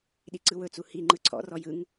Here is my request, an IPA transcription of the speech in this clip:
ɗiǀɯwɵt͡su hi ŋ͡ǃɯǀʰɔ̰rɔ jɯŋ

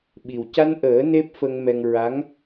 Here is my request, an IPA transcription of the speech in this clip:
ɓi˨˩wca˧nʔəː˨˩˦ ne˦˥p̚fə˧ŋmɛ˧ŋ ɹa˧˥ŋ

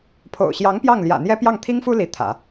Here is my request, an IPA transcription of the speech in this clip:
pʰo̰˨˩ʊ̯ɕjɑ˧˥ŋ pjɑ˥˩ŋljä̰˨˩n̪jɛ˥ pjɑ˥˩ŋt̪ʰi˥ŋfu˥ li˧˥t̪ʰä̰˨˩˦

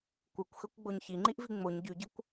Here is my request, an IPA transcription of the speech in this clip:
kʷɯkʷxøkʷɡ͡boɲ çiŋ͡ǃiʔvi ŋ͡moɲ ɟyɟɯkʷ

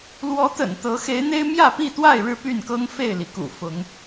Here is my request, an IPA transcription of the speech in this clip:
lwɔ˨˦t̪ə̰˨˩n t̪ɤ˨˦ xe˨˦ɪ̯n̪e˦ɪ̯ mjä˥˨pi˥˨t̪wa˥˨ɪ̯ ɻɻ̩˥˨py˥˨nkɤ˦ŋ fe˥˨ɪ̯li˩kṵ˨˩ fʊ˨˦ŋ

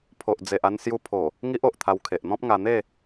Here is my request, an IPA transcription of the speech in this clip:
pʰo˨ʔd͡ze˨ʔa˧n sju˧pʰo˨˩ | ŋi˦ʔo˨ʔt̪ʰa˧w kʰe˨ʔn̪ɔ̃˦p̚ŋa˧ n̪e˥˧

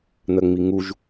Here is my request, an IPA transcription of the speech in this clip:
n̪ɜŋ͡miŋuʒ

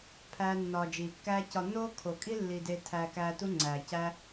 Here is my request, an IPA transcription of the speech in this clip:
pʰæː˦nːɒː˧ d͡ʒiː˨kːæː˦cɒ˧ nːoː˦kʰo˨kʼi˦ lːi˧de˧ tʰæ˧kæː˧tu˦ ŋ͡ǀæː˨cæ˦

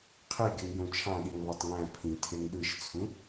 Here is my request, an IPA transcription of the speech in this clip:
qʰeɡeŋjõ t͡ʃʰɑ̃ɗiŋðˤɑtˤ ŋæ̃ pʰĩtʰeŋ ɗɯʃt͡sʰũ

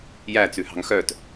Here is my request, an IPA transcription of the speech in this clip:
jæt͡sʉhɑ̤ŋ xœt

